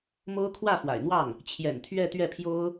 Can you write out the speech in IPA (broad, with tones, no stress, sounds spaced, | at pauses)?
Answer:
m o˥ ʊ̯ kʰ w ä˥˩ x w a̰˨˩ ɪ̯ n̪ w ɑ˥˩ ŋ | t͡ɕʰ j ɛ̰˨˩ n t̪ʰ ɥ ɛ˥˧ t̪ ɥ ɛ˥˩ pʰ j o˥ ʊ̯